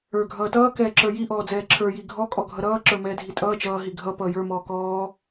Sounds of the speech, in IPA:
ə˞ ɡʱ ʌː t ʌː k ɛː ǁ ə˞ j i ʔ ɔː d͡z ɛː ǁʰ ə˞ j i ɡʱ ɔ kʼ ɔ ɡʱ ʌ ɾ ʌː ǁ ə˞ m ɛː dʱ i tʼ ʌː t͡ʃ ʌː ɦ i ɡʱ ʌ p ʌː j ə˞ m ɔː k ɔː

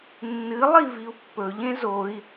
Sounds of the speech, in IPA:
nː ɨ lˠ i v i u̯ pː ɵ ʎ ẽ z o i̯

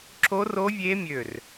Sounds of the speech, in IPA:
ǁ o˦˥ r o˦˥ vʲ e˦˥ mʲ ø˧˩ r

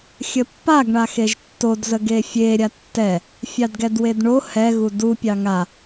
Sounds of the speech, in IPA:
xʲ ə pː a ɡ ɳ a x e ʒ tː o d z ə ɡ e fʲ e ɾʲ a tː ɛ | fʲ ɑ d ɡ ɛ d w e d ɳ o h ɛ ɣ u d u pʲ ɑ ŋ a

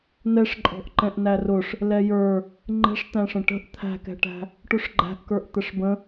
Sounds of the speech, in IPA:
n ɛ ʂ ǃʼ ɔ̤ ʔ ǃ ɛ̃ ʔ n æ r ʊ ʂ | l ɛ j ə˞ | ŋ͡ǃ ɛ̤ ʂ t̪ æ̃ ʂ ə̃ ʈ ə̤ ʔ t̪ʰ æ̤ k ɛ̤ ʈ æ̤ | ʈ ʊ ʂ ɡ͡ǃ æ̤ ʔ k ə˞ ʔ t̪ ə ʂ b ə̃

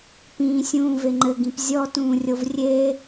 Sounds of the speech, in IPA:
p ĩː sʲ ũː v e ŋ͡ǃ ɘ ɡ ĩ p zʲ ɔ t ũː rʲ o v rʲ e

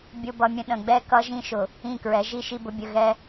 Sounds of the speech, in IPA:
bʲ ʊ˦ b ʌ˦ mʲ ə̃˦ ɗ ə̃˨ ɡ͡b ɛ˦ k ʌ˦ ʒ ĩ˦ ʃ ʊ˨ | ĩ˦˨ k ɹ ɛ˨˦ ʒ i˦ ʃ i˦ b ʊ˦ bʲ ə˦˨ ɣ ɛ˦

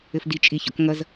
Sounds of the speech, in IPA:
ɘ f d i t͡ʃʼ i ç ɔ̰ k ŋ ʌ z

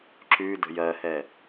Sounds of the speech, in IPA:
ǁ ʉ d ə̤ j ɜ h ɛ

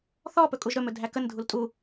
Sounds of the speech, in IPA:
θ ɔ p ɵ kʼ u ʒ ɾ ɵ m ɵ dʱ æ k ə n dʱ u l tʼ u

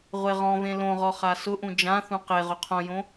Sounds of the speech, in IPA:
ʁʷ e ʁ ɔ̃ v ẽ l õ ʁ ɔ χ a s ʊ ʔ ũ d͡ʒ ã θ ũ q e ʁ ʊ qʰ õ j õ

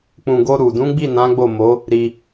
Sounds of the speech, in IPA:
k͡p ũ˨ ɡ o˧ ɾ u˨ d ũ˨˦ ɡ͡b i˦˨ n ã˨˦ ɡ͡b o˦˨ m o˨˦ | ɾ i˧

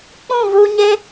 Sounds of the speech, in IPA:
k͡p ũ˦˨ v u˧ ɲ e˦

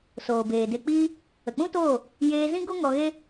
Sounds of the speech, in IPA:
s oː˨ b eː˨ d e˧ k͡p iː˦ | ə˨ k͡p ũ˦ t oː˦˨ | j eː˧ z ĩ˦ ɡ o˦ ŋ ɔ˧ ɣ e˦

